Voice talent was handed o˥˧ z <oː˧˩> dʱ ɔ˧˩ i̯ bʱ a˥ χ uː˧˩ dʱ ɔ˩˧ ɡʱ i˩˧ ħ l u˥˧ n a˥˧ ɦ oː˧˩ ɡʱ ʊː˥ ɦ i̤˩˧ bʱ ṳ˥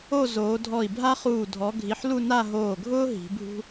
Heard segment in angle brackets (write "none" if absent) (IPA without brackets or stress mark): oː˩˧